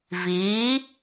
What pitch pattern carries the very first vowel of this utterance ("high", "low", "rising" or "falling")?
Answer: rising